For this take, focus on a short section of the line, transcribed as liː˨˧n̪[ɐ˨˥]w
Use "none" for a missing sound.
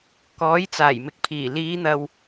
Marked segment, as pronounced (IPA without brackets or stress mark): ɐ˨